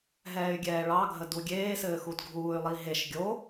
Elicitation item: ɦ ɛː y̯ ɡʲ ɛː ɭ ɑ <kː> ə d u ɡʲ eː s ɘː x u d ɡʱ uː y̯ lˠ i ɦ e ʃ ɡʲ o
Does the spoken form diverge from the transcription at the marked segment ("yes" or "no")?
yes